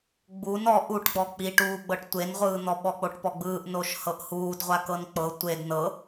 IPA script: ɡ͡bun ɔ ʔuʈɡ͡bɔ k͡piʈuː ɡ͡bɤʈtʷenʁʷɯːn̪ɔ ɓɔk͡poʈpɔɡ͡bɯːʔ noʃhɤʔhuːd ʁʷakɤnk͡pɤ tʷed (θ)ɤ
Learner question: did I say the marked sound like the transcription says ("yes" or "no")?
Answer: no